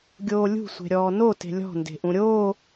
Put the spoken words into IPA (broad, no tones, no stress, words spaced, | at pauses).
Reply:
ɡʲoːlʲṳ sʷe̤ɾʲɔːno te̤lʲɔ̤ nde̤ʔũɾʲoː